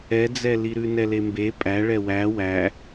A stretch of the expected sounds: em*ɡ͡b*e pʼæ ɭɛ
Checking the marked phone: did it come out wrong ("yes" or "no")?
yes